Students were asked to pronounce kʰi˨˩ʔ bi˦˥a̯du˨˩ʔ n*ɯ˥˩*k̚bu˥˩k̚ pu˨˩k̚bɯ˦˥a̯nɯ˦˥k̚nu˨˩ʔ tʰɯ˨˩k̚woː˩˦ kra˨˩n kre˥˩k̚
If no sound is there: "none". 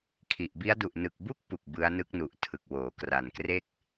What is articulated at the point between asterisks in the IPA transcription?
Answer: ɯ˨˩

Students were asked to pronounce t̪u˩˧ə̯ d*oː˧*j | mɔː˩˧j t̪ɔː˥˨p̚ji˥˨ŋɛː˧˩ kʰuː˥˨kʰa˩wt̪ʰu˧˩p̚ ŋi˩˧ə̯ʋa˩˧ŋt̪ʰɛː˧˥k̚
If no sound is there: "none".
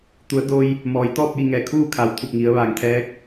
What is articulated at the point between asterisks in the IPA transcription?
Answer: oː˧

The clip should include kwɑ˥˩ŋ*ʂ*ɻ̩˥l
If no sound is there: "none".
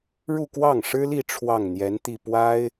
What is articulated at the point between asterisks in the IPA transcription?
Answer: ʂ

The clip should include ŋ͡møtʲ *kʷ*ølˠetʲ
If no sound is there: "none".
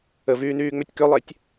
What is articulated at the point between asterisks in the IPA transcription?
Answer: k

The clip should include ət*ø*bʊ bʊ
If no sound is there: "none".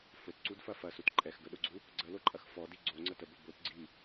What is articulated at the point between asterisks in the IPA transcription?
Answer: ə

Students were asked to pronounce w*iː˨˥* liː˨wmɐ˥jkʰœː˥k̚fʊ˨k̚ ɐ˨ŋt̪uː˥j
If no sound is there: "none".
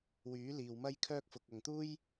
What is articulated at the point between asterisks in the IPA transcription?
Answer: yː˨˥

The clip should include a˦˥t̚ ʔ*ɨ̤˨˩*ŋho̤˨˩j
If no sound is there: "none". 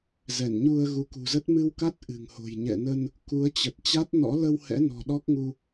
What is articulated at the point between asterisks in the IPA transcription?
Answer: ɨ̤˨˩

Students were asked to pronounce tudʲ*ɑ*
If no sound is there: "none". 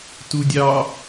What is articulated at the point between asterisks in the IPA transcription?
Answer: ɑ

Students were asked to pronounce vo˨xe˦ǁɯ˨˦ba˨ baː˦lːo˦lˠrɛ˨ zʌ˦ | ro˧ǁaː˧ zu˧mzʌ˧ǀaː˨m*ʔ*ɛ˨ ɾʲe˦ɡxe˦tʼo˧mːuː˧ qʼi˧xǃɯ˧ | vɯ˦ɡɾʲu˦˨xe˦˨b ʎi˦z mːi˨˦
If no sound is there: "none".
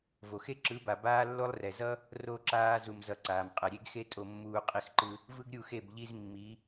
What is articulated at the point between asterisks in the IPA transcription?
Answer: qʼ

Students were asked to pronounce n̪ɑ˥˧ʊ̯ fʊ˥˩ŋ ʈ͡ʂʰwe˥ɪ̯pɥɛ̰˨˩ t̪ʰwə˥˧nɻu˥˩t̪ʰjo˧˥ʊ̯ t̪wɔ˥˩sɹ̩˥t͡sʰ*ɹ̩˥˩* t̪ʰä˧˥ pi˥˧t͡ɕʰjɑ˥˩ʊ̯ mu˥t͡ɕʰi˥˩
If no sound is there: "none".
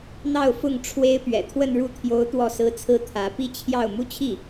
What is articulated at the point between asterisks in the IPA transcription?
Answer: ɹ̩˥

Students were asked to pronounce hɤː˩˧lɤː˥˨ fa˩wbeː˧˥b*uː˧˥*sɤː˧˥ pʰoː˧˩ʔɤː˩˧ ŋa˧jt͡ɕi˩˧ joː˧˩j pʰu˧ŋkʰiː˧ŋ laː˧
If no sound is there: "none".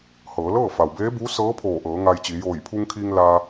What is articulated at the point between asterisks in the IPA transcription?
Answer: uː˧˥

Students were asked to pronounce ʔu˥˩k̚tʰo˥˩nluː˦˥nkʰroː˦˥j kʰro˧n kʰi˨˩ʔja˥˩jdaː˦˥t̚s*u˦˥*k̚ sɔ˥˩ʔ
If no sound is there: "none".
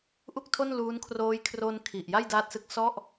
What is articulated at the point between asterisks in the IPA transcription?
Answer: ɯ˦˥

